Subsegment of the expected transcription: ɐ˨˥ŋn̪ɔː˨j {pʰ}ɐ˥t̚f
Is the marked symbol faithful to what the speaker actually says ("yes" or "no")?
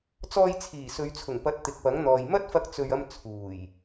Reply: no